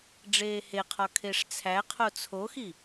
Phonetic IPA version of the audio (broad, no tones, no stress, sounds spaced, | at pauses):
ɖ͡ʐ eː h e qʰ ɒ kʰ e ʂ t͡sʰ æ qʰ o t͡sʰ o x i